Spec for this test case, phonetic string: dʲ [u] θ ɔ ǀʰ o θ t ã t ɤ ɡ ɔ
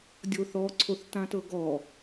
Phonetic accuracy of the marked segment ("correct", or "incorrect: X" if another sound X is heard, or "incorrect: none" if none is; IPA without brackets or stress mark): incorrect: o